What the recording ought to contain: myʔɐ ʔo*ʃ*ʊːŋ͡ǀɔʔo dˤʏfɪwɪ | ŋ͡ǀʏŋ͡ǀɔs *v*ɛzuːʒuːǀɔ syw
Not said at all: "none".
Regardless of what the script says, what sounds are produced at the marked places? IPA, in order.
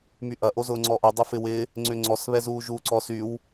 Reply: z, β

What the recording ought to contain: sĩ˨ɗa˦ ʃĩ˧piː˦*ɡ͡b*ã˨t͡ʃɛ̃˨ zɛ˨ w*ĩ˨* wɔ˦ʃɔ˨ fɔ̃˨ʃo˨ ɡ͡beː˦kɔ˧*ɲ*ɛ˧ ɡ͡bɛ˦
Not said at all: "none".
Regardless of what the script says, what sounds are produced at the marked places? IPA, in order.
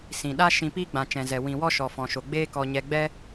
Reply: ɡ͡b, ĩ˨, ɲ

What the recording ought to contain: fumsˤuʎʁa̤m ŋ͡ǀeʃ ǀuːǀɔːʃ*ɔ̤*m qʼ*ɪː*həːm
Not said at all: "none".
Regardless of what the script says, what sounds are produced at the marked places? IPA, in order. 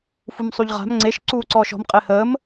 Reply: ɔ̤, ɪː

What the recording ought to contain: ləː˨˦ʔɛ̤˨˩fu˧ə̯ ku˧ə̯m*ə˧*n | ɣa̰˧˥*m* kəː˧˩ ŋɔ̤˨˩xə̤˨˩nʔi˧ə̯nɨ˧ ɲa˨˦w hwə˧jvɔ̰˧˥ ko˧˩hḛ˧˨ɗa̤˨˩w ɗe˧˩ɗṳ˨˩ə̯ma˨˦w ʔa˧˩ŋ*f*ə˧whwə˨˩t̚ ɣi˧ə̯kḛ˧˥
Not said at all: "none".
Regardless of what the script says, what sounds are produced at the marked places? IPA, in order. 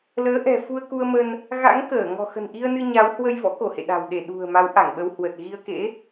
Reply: ə˧, ŋ, ɓ

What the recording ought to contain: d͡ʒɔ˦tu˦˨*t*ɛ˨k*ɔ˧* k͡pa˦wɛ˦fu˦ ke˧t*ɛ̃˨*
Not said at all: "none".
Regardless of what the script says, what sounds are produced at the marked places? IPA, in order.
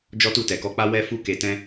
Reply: t, ɔ˧, ɛ̃˦

